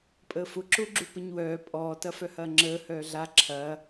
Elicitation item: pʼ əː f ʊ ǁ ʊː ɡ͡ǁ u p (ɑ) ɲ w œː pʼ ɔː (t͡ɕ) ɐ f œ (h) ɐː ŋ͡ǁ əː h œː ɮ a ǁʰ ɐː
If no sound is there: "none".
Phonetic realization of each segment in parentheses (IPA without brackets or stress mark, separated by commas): ə, t, h